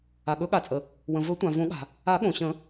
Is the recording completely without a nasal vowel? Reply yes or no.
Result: no